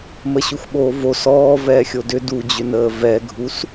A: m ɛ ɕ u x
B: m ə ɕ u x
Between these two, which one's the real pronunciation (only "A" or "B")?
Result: B